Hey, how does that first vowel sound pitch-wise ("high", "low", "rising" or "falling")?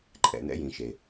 low